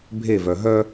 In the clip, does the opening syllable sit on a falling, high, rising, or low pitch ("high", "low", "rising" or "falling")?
falling